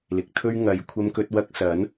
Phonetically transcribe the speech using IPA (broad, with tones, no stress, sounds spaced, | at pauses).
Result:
l ɪ˨˥ k̚ t̪ʰ ɵ˥ ɥ ŋ ɐ˨˧ j kʷʰ ɐ˧ m k ɵ˧ t̚ w ɐ˧ k̚ s ɐ˨˥ n